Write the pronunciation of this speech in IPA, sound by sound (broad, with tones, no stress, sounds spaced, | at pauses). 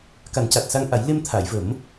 k a˨˩˦ n c a˨˩ t̚ s a˧ ŋ ʔ a˨˩˦ j l e˧ m t̪ʰ a˨˩˨ j v ə˨˩˦ m